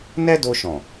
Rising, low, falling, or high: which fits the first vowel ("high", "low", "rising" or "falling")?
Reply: high